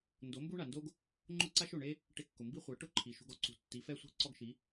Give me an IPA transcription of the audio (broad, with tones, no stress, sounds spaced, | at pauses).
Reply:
n d o˩˥ m b u˥ ɳ a˩ n d o˥ ɡ | ŋ͡ǃ ʊ˥ ǀ a˥ ʃ o˩ ɳ e˥ | ʈ ɪ˧ kː ʊ˩ m b i˥ χʷ a˩˥ ʈ ʊ˥˩ ǃʰ i˩ ʃ ṳ˧ ɡ ɔ˥ ǀ ṳ˩˥ tː i˩˥ f ɛ˥ sʷ i̤˥ ǀ ɔ˥ ɡ ʃ i˩˥